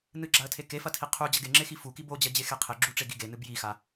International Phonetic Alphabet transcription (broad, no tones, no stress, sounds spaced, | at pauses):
n ɨ ɡ͡ǁ a ə̯ tʰ e k e f ɐ tʰ i qʰ u d͡ʑ ɐ ɡ e ŋ͡ǁ e x i f u k i b o d͡ʑ ɐ d͡ʑ e x e qʰ e ɡ͡ǁ u ʈ͡ʂ e ɡ i ɡ e n ɨ b j i x a